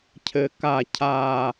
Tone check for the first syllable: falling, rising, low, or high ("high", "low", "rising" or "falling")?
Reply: high